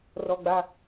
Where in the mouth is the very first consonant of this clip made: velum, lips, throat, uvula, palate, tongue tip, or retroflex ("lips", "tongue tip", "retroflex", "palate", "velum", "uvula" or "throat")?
tongue tip